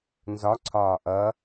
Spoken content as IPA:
n z ɒ ǀʰ ɒː ʔ ʌ

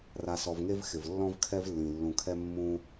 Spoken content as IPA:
r a˨ s ɔ˨ v ŋ e˥ v x ɪ˩ v lː ɔ̃˥ v kʰ ɛ˥ v lː ĩ˩ lː ũ˨ kʰ ɛ˥ mː ũ˥

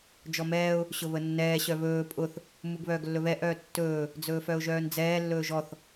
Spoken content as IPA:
d͡ʒ ɔ m ɛː ʊ̯ | ɕ ʊ β ə nː ɛː ɕ œ β ɵː pʼ ʊ θ | m u ɡ β œː ɡ lː ɵ β ɛ ʔ œː tː ɵː | d͡z ɵː f œ ʊ̯ ʒ œː n d͡z ɛː lː ɵː ʒ ɔ θ

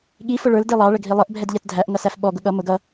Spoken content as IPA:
ɠ i f ʊ ɭ ə˞ l d i lˠ ɑ ɭ ə ɡʱ i lˠ ə ʔ bʱ ɛ d ʎ ɛ t dʱ æ ʔ ŋ ʌ s æ f ɓ ɔ ɡ ʊ ɠ ʌ m ʊ ɡ ʌ

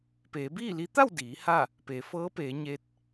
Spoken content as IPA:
p eː˩˧ b iː˥˨ l i˧˥ t̪ a˥˨ w d iː˩˧ h a˥˨ | p eː˩˧ f ɤː˧˥ p eː˩˧ ɲ e˧˥ t̚

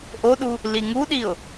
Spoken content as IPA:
ʔ o ɗ u | l i ŋ u ɗ i ʊ̯

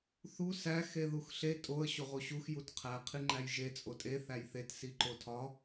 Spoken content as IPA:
θ u s æ x e ð u x ɬ e tʼ o ə̯ ɕ o ʁ o ɕ u x j u t qʰ æ qʰ i ŋ͡ǃ æ j ʒ e t͡sʼ o tʼ e θ æ j θ e t s i ǃ o tʰ ɒ

